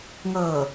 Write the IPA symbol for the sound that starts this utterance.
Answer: ŋ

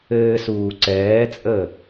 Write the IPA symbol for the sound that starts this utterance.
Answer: ɘː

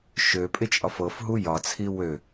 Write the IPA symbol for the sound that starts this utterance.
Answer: ʃ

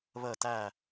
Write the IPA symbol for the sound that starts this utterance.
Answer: β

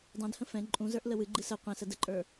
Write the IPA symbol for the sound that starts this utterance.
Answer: dˤ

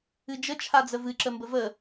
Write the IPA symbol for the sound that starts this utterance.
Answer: ɨ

